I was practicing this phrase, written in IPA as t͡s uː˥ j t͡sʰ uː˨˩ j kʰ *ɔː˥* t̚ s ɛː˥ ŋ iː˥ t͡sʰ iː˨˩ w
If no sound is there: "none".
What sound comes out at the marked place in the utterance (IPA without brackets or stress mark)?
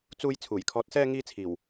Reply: ɔː˧